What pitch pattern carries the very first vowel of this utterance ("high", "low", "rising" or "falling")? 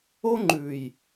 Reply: high